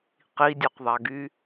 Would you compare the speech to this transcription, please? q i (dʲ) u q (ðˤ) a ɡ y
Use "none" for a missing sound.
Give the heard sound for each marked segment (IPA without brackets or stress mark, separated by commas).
dʲ, ðˤ